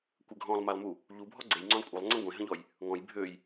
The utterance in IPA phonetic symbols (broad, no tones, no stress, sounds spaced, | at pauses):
kʷ ə ɡʱ ɔ̃ lˠ m a lˠ m u | ʎ u bʱ ɔ ɡ͡ǀ e j ŋ͡ǀ œ̃ lˠ kʷʼ ə lˠ ŋ͡ǀ ə̃ ɡʷ ẽ ɦ ə̃ ʎ ɔ j | ŋ ɔ̃ j bʱ ø j